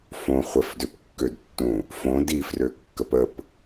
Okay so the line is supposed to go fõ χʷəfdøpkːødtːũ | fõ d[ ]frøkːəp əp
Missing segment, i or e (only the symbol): i